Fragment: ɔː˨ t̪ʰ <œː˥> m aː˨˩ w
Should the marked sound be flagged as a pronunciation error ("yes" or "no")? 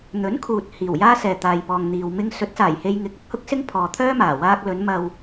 no